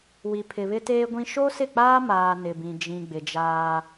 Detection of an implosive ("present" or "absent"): absent